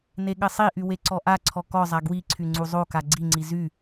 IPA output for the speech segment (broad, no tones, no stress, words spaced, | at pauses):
neɠɘsˤiʔy weǀɔʔaǀʰɔ kɔzˤa ɡwiǀʰy ŋ͡ǀuzˤoka ɡ͡ǀiŋ͡ǀi zy